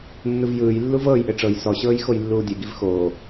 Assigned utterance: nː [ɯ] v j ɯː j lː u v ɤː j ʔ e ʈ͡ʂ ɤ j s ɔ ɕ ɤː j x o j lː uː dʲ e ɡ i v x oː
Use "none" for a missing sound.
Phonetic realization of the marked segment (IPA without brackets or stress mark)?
ɯ